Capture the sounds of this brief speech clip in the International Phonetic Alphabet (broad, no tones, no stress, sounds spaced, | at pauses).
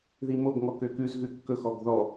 ð i m o ɡ ŋ ɔ k ø k ʉ z ɣ ʉ kː ɵ x ɔ ɡ ð ɔ